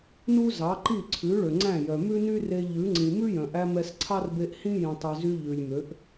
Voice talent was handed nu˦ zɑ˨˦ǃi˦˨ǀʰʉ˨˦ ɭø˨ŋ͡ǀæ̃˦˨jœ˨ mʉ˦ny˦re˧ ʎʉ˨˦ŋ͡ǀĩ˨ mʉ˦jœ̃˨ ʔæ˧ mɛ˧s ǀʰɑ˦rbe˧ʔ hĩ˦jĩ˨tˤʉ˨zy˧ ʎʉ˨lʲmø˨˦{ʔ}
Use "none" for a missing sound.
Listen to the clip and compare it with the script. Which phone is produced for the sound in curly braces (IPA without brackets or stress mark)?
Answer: ʔ